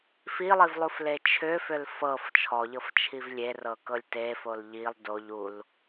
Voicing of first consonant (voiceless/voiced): voiceless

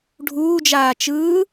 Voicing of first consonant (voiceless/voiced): voiced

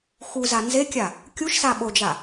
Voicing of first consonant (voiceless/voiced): voiceless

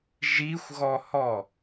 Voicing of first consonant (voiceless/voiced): voiced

